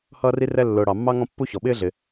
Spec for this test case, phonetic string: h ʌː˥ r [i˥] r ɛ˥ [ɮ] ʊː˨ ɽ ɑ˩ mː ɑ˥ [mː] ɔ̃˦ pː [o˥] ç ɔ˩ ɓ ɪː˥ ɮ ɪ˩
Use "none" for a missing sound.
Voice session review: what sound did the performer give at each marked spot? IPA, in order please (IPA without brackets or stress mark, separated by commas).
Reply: i˥, lː, ŋ, u˥